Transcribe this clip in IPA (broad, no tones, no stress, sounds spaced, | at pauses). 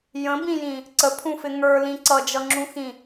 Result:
j ə̃ b ĩ j ĩ | ǀ ə pʰ ũ f ɪ ŋ ə˞ l ĩ ǀ ʌ d͡ʒ ʌ ŋ͡ǁ ũ x ĩ